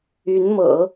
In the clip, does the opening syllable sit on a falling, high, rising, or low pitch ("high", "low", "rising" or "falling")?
rising